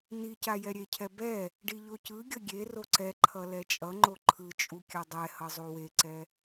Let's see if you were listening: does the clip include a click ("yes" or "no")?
yes